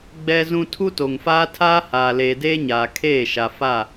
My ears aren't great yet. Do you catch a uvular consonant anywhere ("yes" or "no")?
no